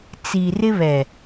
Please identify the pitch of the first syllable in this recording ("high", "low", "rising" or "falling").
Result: low